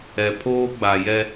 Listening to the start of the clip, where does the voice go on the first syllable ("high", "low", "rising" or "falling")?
low